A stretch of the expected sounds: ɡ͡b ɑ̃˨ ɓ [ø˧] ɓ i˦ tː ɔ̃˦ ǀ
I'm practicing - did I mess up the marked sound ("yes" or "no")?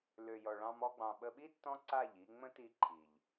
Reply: yes